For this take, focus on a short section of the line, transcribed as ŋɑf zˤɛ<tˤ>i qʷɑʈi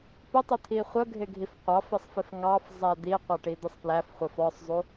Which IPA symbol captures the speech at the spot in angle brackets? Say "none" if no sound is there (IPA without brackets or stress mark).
d̪